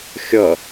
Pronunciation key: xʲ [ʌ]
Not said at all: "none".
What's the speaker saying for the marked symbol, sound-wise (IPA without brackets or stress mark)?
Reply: ʌ